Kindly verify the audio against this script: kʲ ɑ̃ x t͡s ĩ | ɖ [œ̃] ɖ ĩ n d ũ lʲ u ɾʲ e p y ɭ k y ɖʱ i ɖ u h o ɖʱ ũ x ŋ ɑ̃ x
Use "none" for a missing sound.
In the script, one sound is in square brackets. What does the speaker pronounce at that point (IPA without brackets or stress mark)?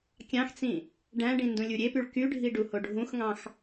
æ̃